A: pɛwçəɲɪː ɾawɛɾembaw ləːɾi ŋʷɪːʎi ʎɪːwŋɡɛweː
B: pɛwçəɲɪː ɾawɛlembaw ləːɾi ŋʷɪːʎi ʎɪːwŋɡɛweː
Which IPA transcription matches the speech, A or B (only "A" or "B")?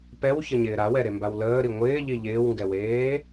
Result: A